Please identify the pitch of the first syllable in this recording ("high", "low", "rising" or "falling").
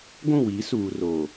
falling